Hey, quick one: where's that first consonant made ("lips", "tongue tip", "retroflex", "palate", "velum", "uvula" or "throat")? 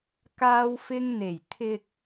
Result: velum